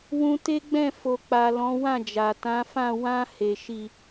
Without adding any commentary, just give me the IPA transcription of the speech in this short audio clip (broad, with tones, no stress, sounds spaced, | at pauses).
w ũ˧ t e˦ ɡ͡b ɛ̃˦˨ f o˨ k͡p a˨ l ɔ̃˨˦ w ã˦˨ d͡ʒ a˨ t ã˨˦ f ã˦˨ w ã˧ h e˨ ʃ i˨